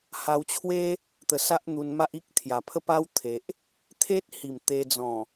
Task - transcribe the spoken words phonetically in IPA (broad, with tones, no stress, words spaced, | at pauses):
ha˧wt͡ɕʰwe˦ | t̪ə˧sa˦ʔn̪u˧nma˦ʔ i˦k̚t̪ʰja˨˩pʰə˦pa˦w t̪ʰe˨ʔ | t̪ʰe˦t̚hi˨˩m t̪e˧d͡zɔ̃˨˩